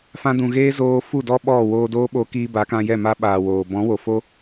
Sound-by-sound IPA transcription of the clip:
fã˧dũ˨ ɣeː˦zoː˧ fu˦˨dɔ˦ ɓɔ˦˨ woː˧doː˦ ɓoː˧kiː˧ba˨˦kã˧ jɛ˦˨ma˦ ɓaː˨ woː˨ bɔ̃˨˦ wo˨fo˦

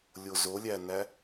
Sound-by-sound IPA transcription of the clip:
lʲozolʲænæ

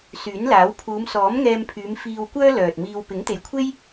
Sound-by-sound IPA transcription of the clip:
syː˨˥nlaː˨˥w pʰuː˨˧msɔː˨˥mŋɛː˧mpʰyː˨˧m fiː˧wkʷœː˥ lœː˨t̚miː˧w pɪ˨˥ŋt̪e˨jkʷʰe˥j

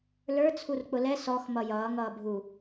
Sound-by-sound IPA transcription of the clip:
lə˞ t͡sʰurk͡pʊlɛ sɔx mʌjʌː ŋʌːbʱu

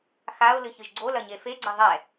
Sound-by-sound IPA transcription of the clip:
xaʊ̯ lɨçɨʒɡ͡ǀolɐ ɲefeɡ͡ǀɐ ðˤɛ

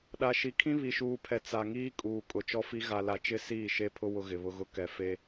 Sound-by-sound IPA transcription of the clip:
ɗa˨ʃi˨kʰĩ˦ βi˨ʃuː˨pʰɛ˨ t͡sa˨ŋiː˦ kʼuː˨ kʼʊ˨t͡ʃɔ˦fi˦ ɣa˨la˨t͡ʃɪ˦˨ siː˦˨ʃe˦pʰʊ˦ wʊ˦ɣɪ˨βʊ˦ɣʊ˦ kɛ˨fe˦

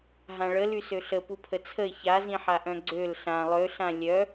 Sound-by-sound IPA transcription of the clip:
ɦãɭə lysøɬə pupʰət͡sʰəɪ̯ çazĩħaʔœ̃ ɡ͡ǀøl ɬã lˠøɬã lʲœ

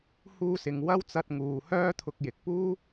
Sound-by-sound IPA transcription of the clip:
huː˧sɪ˨ŋ wɐ˥w t͡sɐ˧t̚ŋuː˨hœː˥t̪ʰʊ˧k̚ jɪ˨k̚puː˥

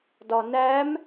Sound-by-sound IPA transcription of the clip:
dɒnæm

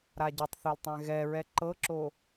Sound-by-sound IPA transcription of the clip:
ɾaɟitˤθoltˤɛ̃ ɣɛɹɛ ǃɤǁo

